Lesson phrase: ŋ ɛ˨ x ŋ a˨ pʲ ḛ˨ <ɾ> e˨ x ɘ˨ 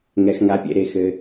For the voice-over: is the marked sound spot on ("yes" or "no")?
yes